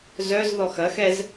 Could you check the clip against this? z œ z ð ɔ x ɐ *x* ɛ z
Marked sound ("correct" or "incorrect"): correct